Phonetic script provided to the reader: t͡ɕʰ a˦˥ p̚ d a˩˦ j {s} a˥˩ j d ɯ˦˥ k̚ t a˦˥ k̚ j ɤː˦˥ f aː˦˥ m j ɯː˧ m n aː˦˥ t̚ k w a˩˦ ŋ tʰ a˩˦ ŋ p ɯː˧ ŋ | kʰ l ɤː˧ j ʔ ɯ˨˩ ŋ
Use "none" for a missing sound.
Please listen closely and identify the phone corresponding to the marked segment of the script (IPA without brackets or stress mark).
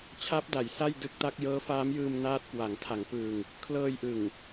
s